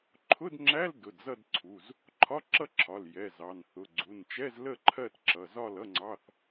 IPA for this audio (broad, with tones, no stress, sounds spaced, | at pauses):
ǃʰ ʊ˧˥˧ d ŋ͡ǁ æ˧˥˧ l d ʊ˩˧˩ d z ʌ˥˨ d ǀʰ u˩˧˩ z | ǃʰ ɒ˧˥˧ ǁ ʌ˥˨ ǁʰ ɒ˩˧˩ l j ɛ˩˧˩ z ɑ˩˧˩ n θ ʊ˩˧˩ ɡ͡ǀ u˩˧˩ n t͡ʃ ɛ˧˥˧ z l ə˥˨ ǃʰ ɜ˥˨ t ǁ ʌ˩˧˩ z ɒ˥˨ l ʌ˧˥˧ ŋ͡ǀ ɑ˧˥˧ θ